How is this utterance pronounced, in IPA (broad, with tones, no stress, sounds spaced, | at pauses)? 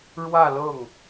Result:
ɻ w ä˥˧ l ɤ˥˩ ŋ